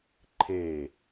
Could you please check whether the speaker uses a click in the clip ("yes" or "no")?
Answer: yes